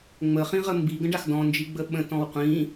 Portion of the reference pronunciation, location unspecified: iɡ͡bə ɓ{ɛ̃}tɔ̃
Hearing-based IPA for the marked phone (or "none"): ə̃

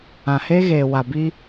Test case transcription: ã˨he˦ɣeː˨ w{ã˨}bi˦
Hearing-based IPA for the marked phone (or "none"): a˨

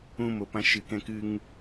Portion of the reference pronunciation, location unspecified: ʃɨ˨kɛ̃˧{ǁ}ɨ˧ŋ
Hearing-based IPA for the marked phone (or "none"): k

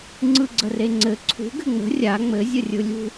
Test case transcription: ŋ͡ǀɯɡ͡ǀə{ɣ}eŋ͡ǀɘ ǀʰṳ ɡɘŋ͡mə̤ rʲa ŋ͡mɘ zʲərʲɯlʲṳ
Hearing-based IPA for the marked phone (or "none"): r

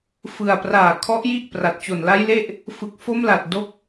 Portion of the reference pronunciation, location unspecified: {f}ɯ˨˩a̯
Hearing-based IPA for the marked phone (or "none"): f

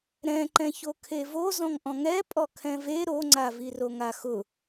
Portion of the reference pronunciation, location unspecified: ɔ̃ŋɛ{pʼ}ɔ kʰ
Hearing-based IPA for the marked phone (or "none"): pʼ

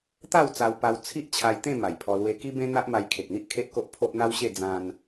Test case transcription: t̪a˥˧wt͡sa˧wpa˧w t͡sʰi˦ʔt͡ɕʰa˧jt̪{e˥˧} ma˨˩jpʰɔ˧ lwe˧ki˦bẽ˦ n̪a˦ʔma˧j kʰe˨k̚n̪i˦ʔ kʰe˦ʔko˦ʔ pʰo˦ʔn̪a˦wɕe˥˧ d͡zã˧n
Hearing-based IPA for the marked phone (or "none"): ẽ˥˧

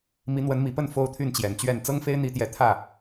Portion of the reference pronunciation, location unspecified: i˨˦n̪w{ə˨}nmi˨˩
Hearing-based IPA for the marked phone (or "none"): ə˨˦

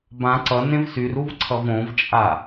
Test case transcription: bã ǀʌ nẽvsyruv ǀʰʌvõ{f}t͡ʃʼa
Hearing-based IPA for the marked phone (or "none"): v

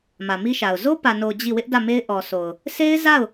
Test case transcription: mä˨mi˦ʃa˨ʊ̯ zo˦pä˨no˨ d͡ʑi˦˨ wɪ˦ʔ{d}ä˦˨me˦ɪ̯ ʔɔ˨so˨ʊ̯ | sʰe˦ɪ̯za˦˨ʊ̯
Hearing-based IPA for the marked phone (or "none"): d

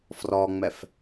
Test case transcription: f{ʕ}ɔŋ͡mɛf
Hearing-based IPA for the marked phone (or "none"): r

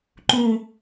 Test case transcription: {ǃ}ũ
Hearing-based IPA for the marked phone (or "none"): ǃ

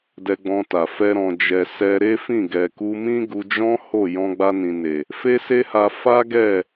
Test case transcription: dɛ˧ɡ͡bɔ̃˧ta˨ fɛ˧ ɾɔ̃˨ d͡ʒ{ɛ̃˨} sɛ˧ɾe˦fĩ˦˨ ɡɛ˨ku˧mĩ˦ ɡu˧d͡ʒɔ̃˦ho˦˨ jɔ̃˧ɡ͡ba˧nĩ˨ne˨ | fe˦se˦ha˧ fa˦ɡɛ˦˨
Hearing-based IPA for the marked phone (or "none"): ɛ˨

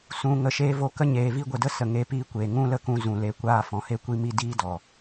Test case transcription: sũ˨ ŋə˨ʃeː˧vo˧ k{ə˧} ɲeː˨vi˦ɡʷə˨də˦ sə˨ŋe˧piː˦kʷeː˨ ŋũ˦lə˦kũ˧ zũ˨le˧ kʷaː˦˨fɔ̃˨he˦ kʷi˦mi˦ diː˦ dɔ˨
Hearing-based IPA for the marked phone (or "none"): ə˦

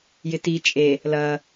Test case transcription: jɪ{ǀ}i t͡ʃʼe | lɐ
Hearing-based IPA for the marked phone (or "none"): t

